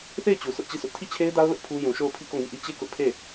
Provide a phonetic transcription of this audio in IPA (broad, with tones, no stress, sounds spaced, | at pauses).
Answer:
θ e˦˨ ɪ̯ t͡ɕ u˨ s ʊ˦ ʔ t͡ɕ i˦˨ s ʊ˦ ʔ tʰ i˦˨ t͡ɕʰ e˦ ɪ̯ d a˦ ʊ̯ l ʊ˦ ʔ pʰ u˦ j ũ˨ ʃ o˦˨ ʊ̯ pʰ i˦˨ k o˦˨ ŋ i˦˨ ʔ i˦ t͡ɕ e˦˨ k ʊ˦ ʔ pʰ e˦˨